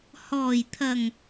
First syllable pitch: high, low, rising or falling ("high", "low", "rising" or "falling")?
low